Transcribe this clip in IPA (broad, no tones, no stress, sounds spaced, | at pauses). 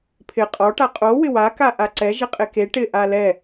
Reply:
pʰ ɪ qʼ ɔ ʈ a qʼ o w ɪ w a k a ʔ a ǀ ɛ ʒ ɪ qʼ e k e ʈ ɪ ʔ a l ɛ